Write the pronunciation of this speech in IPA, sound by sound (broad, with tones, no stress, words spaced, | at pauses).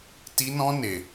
ti˦ nɔ̃˦ne˧